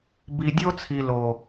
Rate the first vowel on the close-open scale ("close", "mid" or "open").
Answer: close